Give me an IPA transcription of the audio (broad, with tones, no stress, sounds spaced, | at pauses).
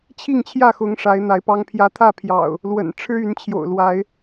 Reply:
t͡ɕʰ i˥˨ ŋ t͡ɕʰ j ä˥˨ x ʊ˨˦ ŋ ʂ a˨˦ ɪ̯ n̪ a˨˦ ɪ̯ p ɑ˦ ŋ pʰ j ä˦ t̪ʰ ä˥˨ pʰ j ɑ̰˨˩ ʊ̯ | l w ə̰˨˩ n ʈ͡ʂʰ ɻ̩˦ y˨˦ n t͡ɕʰ j o̰˨˩ ʊ̯ l w a˨˦ ɪ̯